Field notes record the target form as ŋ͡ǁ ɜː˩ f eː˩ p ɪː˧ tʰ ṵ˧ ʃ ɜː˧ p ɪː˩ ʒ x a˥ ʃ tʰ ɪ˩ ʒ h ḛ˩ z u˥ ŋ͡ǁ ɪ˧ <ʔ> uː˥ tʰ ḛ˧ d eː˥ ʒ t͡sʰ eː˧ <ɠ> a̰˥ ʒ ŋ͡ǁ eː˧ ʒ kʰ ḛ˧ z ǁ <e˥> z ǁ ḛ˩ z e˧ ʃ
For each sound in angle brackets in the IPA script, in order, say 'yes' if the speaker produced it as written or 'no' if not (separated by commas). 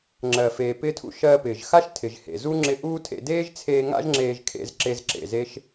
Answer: yes, no, no